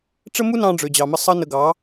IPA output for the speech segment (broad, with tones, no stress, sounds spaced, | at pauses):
ʈ͡ʂ ə˦ m u˦ n ɑ̃˧ ɖ͡ʐ ø˨ d͡ʑ ɑ˨ m ə˧ sˤ ə˦ n ə˧ ɡ ɑ˨˦